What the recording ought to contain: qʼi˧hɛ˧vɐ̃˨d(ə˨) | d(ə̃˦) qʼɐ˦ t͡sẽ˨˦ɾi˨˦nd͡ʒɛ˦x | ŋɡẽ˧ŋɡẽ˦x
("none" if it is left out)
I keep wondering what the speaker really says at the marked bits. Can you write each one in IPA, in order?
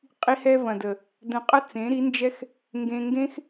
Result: ə˨, ə̃˧

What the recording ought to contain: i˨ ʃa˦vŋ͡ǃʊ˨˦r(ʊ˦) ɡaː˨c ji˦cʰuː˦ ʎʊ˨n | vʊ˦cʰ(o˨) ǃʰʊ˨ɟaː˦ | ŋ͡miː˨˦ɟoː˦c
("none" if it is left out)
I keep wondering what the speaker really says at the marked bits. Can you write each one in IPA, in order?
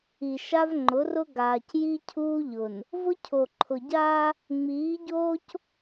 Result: ʊ˦, o˨

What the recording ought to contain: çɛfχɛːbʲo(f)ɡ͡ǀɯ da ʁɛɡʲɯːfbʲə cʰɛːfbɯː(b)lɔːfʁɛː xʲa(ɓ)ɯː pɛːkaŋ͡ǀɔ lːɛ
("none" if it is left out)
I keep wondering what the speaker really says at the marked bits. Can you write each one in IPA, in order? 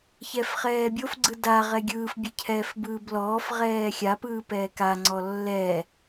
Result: f, b, p

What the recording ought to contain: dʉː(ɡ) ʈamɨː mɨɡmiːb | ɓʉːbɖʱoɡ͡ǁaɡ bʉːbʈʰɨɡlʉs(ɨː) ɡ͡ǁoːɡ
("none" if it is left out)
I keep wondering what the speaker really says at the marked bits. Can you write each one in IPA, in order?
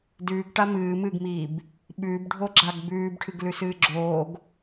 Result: ɡ, ɨː

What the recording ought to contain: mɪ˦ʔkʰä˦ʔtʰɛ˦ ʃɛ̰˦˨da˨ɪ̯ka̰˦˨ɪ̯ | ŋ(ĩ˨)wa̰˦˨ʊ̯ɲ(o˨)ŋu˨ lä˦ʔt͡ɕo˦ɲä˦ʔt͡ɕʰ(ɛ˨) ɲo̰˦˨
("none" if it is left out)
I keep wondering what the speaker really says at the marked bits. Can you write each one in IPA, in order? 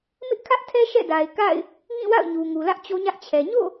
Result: ĩ˦˨, u˨, ɛ˨

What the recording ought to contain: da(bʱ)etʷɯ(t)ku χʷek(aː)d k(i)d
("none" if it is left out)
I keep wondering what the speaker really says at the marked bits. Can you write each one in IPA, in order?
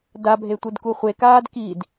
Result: bʱ, d, aː, i

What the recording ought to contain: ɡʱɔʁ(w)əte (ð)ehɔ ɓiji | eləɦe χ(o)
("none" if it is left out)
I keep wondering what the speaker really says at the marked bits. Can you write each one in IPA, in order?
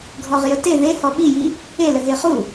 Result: j, ð, u

